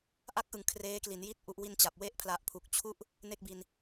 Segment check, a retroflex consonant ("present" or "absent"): absent